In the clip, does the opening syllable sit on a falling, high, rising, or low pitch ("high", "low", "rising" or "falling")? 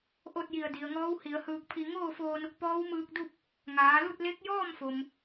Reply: falling